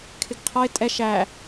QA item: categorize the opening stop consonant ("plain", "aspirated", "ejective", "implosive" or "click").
aspirated